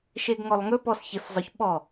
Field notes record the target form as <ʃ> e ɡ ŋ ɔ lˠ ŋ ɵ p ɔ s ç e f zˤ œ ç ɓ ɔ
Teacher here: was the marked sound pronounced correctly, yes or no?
yes